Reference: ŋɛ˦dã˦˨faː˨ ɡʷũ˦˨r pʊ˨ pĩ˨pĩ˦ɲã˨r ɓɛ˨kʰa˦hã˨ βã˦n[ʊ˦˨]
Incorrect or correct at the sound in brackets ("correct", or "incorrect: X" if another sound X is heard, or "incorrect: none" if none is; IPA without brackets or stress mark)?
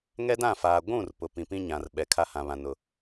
incorrect: ʊ˦